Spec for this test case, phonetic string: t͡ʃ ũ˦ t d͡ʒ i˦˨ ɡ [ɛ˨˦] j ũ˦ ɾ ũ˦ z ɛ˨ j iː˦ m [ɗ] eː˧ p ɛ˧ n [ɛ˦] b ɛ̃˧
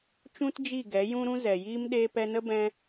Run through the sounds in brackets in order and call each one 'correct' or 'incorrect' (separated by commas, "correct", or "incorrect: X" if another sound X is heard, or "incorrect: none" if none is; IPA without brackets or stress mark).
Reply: correct, correct, incorrect: ə˦